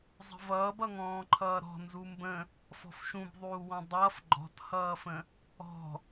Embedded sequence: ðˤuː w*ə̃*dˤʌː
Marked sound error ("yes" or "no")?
yes